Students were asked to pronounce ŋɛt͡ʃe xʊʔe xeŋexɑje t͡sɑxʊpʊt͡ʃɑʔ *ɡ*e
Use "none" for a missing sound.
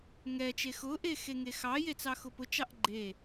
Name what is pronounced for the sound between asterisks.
ɡ͡ǃ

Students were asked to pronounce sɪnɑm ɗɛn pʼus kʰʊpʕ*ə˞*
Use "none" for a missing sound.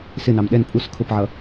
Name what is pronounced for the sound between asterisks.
ʌ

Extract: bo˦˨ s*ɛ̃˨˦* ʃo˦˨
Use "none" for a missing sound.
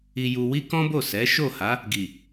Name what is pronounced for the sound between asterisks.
ɛ˨˦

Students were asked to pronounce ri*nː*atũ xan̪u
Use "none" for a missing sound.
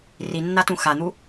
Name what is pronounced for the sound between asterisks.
nː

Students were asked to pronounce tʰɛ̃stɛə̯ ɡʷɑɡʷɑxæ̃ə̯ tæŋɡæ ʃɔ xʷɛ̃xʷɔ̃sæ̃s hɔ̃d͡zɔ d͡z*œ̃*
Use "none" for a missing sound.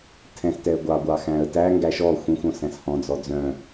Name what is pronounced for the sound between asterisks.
œ̃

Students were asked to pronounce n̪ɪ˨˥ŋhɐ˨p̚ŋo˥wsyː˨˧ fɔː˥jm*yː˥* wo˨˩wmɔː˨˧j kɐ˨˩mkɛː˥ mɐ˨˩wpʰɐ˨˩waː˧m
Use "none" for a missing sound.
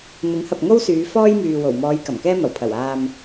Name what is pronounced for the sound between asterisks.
yː˨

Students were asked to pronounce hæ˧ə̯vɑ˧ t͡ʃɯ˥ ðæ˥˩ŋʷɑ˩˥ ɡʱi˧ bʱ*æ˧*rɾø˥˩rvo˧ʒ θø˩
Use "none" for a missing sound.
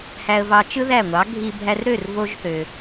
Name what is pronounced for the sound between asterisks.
æ˧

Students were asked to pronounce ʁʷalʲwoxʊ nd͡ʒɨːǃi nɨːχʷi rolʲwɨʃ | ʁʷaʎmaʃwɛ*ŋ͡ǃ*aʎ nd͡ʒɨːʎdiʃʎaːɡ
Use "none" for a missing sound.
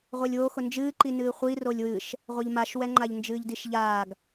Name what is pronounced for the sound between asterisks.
ŋ͡ǃ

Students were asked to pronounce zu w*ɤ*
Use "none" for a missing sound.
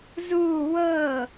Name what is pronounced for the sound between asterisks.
ɤ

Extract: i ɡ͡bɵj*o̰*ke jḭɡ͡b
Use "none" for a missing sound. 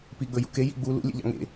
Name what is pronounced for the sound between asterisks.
ṵ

